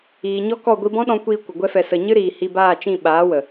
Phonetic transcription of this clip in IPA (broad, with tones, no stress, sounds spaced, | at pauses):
iː˨ ɲ ɔ˦ k ɔ˦˨ ɡʷ i˧ b ɔ̃˦ ɗ ɔ̃˧ kʷ iː˧ kʷ ə˨ ɡʷ ɛ˦ f ɛ˧ s ə˧ ɲ ɨ˦ ɾ iː˨ h i˧ b aː˦˨ t͡ʃ ĩ˦˨ ɓ aː˨˦ w ə˨